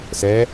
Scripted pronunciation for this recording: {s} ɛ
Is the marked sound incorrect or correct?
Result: correct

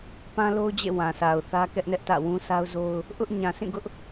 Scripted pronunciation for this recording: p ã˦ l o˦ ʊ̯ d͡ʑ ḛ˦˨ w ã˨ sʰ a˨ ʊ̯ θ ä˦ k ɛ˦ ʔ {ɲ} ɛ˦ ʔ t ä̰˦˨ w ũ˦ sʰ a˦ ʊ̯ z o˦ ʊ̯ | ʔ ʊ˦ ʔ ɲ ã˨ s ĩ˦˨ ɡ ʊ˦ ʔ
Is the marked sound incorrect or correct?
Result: incorrect: n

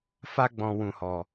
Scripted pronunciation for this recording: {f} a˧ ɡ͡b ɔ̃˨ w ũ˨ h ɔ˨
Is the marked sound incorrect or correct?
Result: correct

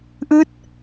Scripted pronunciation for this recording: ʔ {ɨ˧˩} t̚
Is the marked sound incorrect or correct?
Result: incorrect: ɨ˦˥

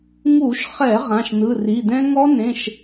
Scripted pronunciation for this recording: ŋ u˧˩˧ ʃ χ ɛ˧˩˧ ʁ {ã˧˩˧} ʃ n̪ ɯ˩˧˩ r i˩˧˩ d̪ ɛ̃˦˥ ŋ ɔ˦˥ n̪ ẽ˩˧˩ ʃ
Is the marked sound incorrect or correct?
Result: incorrect: ã˩˧˩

